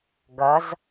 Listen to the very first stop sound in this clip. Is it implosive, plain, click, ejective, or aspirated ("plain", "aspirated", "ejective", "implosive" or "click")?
plain